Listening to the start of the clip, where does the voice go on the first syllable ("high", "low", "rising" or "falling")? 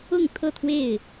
falling